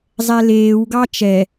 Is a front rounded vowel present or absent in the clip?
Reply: absent